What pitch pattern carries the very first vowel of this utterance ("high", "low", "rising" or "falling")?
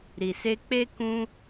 low